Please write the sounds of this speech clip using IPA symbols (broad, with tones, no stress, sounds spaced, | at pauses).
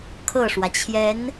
kʰ ɤ˥˩ ʂ w ä˩ t͡ɕʰ j ɛ˧˥ n